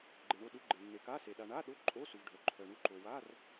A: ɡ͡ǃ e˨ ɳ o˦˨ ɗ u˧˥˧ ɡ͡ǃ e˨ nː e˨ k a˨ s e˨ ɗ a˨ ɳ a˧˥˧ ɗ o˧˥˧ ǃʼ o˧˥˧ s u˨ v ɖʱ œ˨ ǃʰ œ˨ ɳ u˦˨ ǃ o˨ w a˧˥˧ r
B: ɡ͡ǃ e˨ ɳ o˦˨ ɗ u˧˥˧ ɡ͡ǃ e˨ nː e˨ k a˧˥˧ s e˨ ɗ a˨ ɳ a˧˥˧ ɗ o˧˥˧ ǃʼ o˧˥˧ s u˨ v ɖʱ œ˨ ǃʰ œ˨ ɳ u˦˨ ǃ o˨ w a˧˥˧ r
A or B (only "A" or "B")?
B